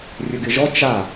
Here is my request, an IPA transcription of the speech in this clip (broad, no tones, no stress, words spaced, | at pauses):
rʲɵɡɪʒɔ t͡ʃa